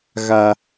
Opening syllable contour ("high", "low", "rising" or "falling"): low